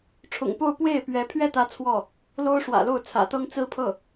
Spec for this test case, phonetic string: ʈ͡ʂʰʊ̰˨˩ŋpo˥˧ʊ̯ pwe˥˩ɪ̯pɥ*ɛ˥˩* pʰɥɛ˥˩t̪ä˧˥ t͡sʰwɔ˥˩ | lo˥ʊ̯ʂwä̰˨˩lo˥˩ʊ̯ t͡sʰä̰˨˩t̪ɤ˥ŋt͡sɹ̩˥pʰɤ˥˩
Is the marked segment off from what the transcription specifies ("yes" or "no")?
yes